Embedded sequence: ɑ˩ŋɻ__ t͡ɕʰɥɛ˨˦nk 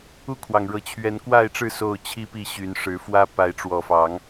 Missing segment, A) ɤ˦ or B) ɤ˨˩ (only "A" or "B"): B